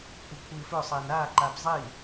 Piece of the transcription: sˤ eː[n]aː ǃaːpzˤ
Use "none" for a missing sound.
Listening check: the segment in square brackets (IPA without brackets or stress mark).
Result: n